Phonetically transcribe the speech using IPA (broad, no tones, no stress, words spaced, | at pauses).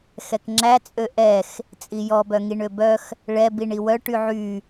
xɛkŋ͡ǁæ t͡sʼøʔɛx | t͡sʼijɔ bœŋiɳøbœx | ɭɛ biɳiwœ ʈyʕy